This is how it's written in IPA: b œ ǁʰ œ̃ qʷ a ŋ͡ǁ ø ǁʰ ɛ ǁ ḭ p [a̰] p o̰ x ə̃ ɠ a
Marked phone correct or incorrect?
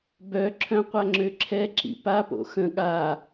incorrect